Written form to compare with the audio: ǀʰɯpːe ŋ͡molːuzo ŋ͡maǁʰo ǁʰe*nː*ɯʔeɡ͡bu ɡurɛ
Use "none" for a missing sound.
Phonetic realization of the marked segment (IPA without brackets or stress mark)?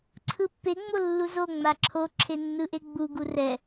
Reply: nː